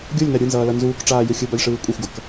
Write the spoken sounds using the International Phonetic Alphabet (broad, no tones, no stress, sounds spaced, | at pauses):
ɡʲ o lʲ n a ɾʲ ɯ n z ʌː l ʌ n z uː k ʈ͡ʂ aː j ɯ xʲ ɯ b a lʲ ʂ ɯː kʷʼ ɛ xʷ ɡ ʌ k